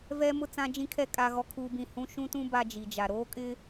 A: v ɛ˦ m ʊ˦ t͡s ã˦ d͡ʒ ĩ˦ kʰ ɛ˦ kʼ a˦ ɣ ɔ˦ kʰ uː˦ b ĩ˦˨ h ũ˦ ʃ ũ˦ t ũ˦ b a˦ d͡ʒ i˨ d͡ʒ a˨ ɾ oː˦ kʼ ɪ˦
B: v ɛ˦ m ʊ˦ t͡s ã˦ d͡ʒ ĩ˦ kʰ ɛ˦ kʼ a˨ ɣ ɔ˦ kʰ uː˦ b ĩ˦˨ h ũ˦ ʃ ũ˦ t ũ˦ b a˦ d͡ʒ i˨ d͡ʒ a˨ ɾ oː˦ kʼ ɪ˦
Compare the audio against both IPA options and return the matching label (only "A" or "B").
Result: A